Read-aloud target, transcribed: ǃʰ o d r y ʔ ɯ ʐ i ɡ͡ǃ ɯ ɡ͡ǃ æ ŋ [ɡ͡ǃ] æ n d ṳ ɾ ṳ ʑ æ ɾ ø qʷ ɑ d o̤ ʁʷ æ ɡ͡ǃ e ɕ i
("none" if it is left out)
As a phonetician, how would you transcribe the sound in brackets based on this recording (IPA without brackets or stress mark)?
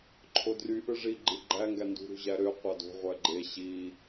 ɡ